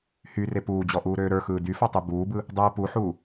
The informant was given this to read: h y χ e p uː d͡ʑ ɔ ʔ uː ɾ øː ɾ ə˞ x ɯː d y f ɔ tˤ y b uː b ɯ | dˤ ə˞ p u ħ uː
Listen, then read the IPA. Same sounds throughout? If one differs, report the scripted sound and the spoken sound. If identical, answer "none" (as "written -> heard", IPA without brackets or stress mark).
χ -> r